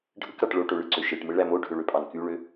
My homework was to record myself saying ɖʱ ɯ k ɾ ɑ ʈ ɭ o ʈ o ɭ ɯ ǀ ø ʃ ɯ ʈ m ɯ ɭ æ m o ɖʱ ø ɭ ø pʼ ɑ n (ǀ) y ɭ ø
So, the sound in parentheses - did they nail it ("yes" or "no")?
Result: no